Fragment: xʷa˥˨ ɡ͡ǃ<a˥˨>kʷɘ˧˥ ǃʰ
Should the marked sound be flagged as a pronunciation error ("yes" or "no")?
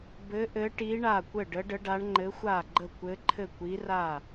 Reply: yes